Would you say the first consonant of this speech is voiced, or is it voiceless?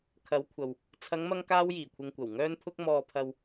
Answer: voiceless